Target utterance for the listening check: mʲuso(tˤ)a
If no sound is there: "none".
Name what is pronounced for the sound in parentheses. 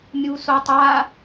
tˤ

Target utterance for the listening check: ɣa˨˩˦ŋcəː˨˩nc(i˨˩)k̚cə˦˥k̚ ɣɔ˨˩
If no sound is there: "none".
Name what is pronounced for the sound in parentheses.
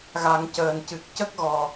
ɨ˨˩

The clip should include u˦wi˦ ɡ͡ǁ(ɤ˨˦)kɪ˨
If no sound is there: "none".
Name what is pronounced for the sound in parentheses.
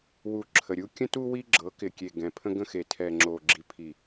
ɤ˨˦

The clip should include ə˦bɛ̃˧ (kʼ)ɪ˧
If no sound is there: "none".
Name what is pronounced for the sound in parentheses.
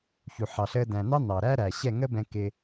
k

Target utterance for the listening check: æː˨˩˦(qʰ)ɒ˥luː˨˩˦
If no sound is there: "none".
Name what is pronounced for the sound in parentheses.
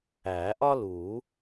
ʔ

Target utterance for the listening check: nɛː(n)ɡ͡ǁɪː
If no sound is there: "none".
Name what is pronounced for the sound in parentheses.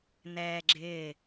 none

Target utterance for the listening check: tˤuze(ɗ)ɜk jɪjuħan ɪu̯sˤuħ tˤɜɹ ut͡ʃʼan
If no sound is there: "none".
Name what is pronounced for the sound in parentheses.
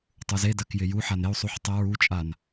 d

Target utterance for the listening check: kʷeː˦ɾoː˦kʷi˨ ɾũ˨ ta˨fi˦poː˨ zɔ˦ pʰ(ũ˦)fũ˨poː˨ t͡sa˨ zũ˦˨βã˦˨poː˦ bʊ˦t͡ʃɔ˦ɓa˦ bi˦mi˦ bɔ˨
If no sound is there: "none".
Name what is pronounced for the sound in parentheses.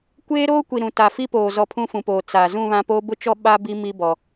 ũ˦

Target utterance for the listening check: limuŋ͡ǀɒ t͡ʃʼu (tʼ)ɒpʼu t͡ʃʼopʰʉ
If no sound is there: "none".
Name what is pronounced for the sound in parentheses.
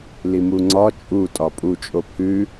tʼ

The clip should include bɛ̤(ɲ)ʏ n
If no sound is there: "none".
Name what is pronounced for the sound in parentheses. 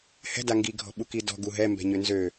ɲ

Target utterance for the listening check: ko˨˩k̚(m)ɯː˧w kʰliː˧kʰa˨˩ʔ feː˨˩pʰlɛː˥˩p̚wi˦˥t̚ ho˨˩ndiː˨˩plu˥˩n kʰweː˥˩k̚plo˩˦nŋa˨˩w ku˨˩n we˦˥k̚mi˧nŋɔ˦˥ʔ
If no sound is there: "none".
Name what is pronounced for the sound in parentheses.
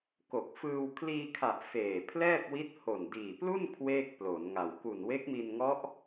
f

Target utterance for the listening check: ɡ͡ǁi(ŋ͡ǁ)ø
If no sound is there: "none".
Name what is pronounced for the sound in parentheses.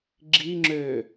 ŋ͡ǁ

